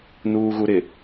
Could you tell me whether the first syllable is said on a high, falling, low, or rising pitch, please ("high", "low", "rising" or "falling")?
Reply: low